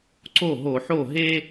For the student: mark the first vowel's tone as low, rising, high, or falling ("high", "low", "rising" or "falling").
falling